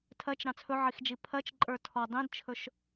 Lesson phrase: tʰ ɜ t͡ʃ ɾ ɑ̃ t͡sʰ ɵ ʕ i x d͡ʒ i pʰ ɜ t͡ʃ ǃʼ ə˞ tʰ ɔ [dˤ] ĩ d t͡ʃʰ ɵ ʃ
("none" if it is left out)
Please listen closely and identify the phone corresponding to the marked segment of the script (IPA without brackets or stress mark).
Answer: dˤ